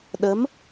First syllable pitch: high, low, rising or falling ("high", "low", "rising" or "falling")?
rising